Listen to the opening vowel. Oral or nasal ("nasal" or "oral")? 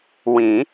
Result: nasal